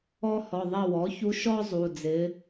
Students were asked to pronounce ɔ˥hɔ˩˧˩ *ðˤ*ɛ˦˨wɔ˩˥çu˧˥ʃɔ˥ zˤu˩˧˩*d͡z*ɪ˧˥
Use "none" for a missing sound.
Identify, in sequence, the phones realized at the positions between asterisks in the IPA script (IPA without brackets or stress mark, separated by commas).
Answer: ðˤ, d͡z